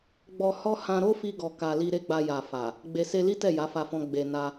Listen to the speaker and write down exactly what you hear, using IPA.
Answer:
ɡ͡bɔ˧hɔ˦ hã˧ɾo˦fi˧ɡɔ˨ ka˨ li˧ɾe˦ɡ͡ba˧ja˨ fa˨ | ɡ͡be˨se˧li˦ tɛ˦˨ja˨˦fa˧fɔ̃˧ ɡ͡be˨na˧

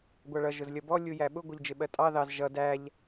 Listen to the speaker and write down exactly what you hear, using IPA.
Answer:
ɡʷɑɭʌ ʒʊzlʲʌbɔ lʲujæɓʊ ɡʷʌʎd͡ʒɪɓɜtʼɑ ðɑz ʒʌ dæʎ

